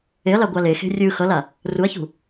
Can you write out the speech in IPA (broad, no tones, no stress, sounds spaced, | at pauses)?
e ɐ̯ l a ɡʷ a l e x e̤ rʲ ɯ x ʌ l a | r u ɐ̯ ç ṳ